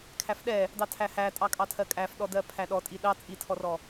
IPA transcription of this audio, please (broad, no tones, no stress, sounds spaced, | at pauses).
kʰ æ f ɗ ɛ | d ɑ tʰ æ h æ tʼ ɑ kʼ ɑ tʰ ɜ kʼ æ f ɗ ɔ d ɜ pʰ æ ɗ ɔ tʼ i ɗ ɑ t͡sʼ i tʰ ɔ r ɔ